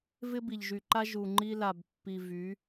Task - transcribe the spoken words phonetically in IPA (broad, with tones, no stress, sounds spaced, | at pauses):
v ɪ˦ b i˨ ʎ ʒ y˨ ǃ a˦ ʒ u˨ ŋ͡ǃ i˦ l a˨ b pː i˨ v y˨˦